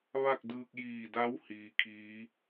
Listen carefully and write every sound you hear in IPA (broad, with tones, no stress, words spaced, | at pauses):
ʋa˥˨k̚dɯː˧k̚ jiː˧˩da˧˥w hiː˧kʰiː˧˥